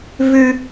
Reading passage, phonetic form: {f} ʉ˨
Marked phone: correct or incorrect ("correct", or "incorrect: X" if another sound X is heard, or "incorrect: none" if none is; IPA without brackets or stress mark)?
incorrect: v